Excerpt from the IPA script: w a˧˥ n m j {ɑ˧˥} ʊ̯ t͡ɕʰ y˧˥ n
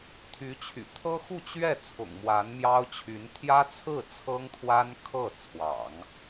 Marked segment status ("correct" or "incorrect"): incorrect